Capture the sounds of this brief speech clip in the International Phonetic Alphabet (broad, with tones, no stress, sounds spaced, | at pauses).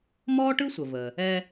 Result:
m ɔː˥ ʈ ɯ˥ sʷ ə˩ v ə˩ | ɛ˧